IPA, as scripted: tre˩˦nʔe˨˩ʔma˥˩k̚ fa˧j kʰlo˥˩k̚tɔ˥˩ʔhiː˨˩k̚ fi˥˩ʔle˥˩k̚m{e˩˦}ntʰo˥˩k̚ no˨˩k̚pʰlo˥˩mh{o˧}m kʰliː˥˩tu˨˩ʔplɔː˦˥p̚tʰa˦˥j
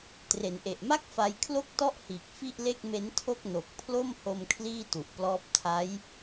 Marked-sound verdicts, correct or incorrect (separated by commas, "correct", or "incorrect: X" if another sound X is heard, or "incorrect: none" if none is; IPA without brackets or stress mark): incorrect: e˦˥, correct